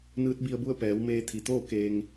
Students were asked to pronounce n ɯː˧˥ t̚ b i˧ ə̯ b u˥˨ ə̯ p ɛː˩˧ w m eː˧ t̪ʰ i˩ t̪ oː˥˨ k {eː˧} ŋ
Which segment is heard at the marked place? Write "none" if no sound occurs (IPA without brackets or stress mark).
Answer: eː˧